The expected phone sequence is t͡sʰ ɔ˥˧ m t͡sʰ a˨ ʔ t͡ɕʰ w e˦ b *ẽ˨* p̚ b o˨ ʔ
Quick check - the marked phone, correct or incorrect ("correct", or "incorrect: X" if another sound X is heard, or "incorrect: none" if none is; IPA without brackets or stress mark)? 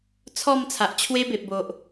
incorrect: e˨